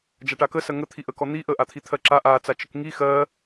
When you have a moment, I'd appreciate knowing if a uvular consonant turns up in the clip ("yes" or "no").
no